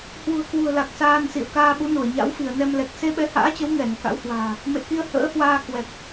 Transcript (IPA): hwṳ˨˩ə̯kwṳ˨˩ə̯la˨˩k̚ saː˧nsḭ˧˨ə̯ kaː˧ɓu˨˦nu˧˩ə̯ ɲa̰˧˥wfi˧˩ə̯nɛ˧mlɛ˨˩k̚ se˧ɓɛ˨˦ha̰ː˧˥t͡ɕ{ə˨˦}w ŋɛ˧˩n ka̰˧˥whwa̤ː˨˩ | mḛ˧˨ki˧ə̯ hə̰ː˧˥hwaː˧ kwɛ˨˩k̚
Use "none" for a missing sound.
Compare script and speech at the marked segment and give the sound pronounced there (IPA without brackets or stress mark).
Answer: ə˨˦